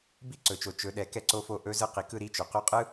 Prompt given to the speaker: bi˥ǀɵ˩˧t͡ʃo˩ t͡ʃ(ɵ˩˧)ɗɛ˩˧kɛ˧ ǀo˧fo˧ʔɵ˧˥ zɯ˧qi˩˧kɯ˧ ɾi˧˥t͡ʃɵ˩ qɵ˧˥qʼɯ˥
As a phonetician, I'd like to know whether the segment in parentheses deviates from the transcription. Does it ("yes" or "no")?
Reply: no